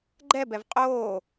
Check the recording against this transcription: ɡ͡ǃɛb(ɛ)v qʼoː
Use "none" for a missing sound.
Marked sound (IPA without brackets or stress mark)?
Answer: ɛ